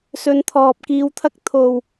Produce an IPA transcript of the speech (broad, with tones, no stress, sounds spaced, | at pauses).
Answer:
s ɵ˨˧ n t̪ʰ ɔː˨ p̚ k iː˨˧ w t̪ʰ ɐ˧ k̚ t̪ʰ o˧ w